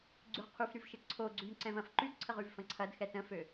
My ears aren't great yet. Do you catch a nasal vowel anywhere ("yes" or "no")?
yes